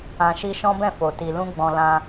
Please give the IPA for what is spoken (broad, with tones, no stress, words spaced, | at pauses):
ã˧ʃi˦ ʃɔ̃˦bɛ̃˦˨fo˨ ti˧ lũ˦ɡ͡bɔ̃˧ lã˧